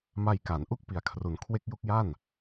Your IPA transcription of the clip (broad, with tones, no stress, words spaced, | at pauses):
ma˧jka˩˦nʔu˥˩k̚ pi˨˩a̯kʰru˩˦nkʰwe˦˥k̚ ju˦˥k̚ja˥˩n